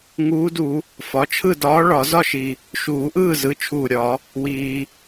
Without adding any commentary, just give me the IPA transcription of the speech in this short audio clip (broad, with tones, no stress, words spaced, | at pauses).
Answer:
ŋuː˧˥du˨˩˦ | fɒ˩˧˩t͡ʃʰɯ˥˨dɒː˧˥ ɭɒ˨˩˦ zɒ˥˨ʃi˩ | ʃuː˨˩˦ʔɯː˥˨zɯ˩˧˩ t͡ʃʰuː˧˩ɾʲɒ˨˩˦ | wiː˩